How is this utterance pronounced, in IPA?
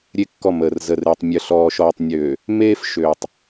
ɾʲ e˦ kː ɔ˦˨ m əː˨ r z ə˨ r eː˨ tˤ mʲ ə˨ ɬ ɔː˨ ʃ ɔː˨ tˤ nʲ øː˨ | m eː˦ f ʃ øː˨ tˤ

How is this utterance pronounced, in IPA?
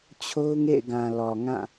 t͡ɕʰ o˦ ʊ̯ ŋ ḛ˦˨ ɪ̯ ɡ ã˨ l ɔ˨ ŋ ã˦˨

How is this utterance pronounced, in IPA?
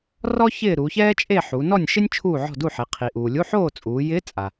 r ɔ˥ ç ɪː˥˨ ɾ u˩˧ ç ɛː˥ t͡ʃʼ e˥˨ ħ u˩˧ n ɔ˥˨ nʲ ʃ ɪ˥ nʲ t͡ʃʰ uː˥˨ ʕ ɔ̤˥˨ d u˥˨ ħ e˩˧ qʰ i˩ ʔ uː˩ lʲ u˧˥˧ ħ oː˥˨ t͡sʼ uː˩˧ j ɪː˧˥ t͡sʼ a˩

